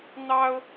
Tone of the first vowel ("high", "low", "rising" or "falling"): high